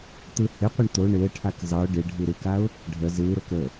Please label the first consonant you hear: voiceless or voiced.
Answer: voiceless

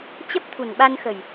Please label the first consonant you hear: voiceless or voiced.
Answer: voiceless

